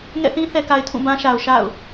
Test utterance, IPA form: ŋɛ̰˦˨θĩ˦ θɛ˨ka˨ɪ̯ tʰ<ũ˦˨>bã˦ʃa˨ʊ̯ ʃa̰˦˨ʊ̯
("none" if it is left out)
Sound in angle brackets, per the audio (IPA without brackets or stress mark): ũ˦˨